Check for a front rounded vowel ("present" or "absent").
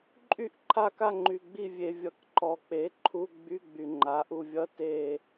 present